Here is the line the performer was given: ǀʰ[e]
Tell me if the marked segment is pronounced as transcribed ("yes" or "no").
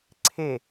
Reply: yes